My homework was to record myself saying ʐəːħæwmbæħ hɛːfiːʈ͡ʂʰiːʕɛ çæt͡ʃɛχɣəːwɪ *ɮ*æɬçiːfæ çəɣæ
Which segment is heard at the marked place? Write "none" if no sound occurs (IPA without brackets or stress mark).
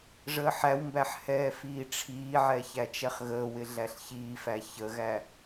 ɮ